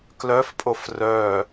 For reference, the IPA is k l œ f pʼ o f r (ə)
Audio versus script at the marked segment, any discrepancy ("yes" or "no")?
yes